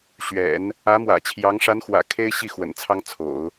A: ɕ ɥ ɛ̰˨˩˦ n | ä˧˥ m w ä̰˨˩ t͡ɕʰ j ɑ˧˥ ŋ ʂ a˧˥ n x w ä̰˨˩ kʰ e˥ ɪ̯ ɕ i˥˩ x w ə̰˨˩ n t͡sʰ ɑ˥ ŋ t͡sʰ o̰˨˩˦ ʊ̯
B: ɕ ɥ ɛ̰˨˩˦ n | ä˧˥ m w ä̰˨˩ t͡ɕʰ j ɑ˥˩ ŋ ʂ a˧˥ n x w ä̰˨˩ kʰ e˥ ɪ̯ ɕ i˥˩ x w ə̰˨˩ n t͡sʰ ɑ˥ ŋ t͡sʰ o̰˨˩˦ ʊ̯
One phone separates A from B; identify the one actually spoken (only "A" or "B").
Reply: A